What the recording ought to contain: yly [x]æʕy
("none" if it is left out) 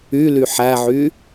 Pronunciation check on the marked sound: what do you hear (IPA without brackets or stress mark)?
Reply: ħ